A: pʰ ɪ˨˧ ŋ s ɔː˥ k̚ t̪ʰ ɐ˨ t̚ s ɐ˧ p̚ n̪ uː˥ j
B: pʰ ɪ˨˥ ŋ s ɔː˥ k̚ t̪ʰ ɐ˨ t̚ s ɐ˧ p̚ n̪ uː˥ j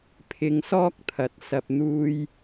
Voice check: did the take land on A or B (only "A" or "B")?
A